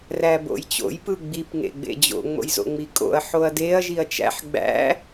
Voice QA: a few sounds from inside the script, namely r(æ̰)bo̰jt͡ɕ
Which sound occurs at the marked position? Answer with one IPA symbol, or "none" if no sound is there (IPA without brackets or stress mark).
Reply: æ